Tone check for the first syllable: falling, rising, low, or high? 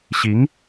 rising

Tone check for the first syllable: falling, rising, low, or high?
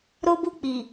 high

